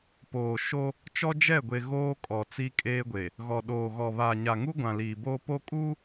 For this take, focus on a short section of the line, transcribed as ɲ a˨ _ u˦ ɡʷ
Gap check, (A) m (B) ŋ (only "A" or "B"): B